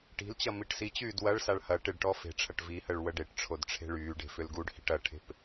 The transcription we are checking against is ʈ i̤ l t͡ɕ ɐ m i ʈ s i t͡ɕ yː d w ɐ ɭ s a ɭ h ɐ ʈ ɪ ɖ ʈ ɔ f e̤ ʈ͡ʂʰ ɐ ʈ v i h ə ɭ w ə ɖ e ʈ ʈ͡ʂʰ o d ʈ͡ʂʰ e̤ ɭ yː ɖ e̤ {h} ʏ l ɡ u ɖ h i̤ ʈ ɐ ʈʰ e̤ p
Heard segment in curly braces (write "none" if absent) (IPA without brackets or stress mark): f